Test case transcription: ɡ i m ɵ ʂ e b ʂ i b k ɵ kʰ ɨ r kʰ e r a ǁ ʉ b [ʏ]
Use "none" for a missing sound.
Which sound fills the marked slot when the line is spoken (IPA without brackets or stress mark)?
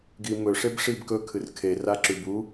u